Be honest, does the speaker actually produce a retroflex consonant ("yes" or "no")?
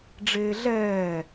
yes